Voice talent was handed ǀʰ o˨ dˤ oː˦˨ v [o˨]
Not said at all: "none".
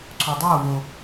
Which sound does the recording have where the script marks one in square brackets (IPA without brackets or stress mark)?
o˨